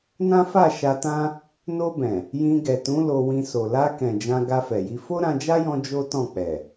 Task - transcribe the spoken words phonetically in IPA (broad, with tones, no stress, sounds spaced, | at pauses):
n ã˦ f a˦˨ ʃ a˧ t ã˦ | n o˧ b ɛ̃˨ | j ĩ˧ ɡ ɛ˨ t ũ˨˦ l o˧ w ĩ˧ s o˨ l a˧ k ɛ̃˨ d͡ʒ ã˧ ɡ a˧ f ɛ˨ j i˧ f o˦ ɾ ã˧ d͡ʒ a˦ j ɔ̃˧ d͡ʒ o˦ t ɔ̃˦˨ k͡p ɛ˨